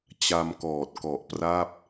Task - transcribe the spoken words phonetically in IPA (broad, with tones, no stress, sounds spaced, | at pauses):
t͡ɕ a˧ m k ɔː˨˩ t̚ k ɔ˨˩ ʔ p r a˥˩ p̚